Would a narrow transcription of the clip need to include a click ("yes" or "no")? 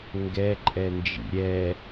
yes